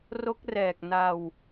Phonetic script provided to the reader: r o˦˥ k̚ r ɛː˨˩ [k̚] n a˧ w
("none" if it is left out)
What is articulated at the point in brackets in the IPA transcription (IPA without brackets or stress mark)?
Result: k̚